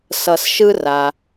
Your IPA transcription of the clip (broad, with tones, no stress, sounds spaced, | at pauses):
s ʌ˨ s ʃ ɯ˦ r a˩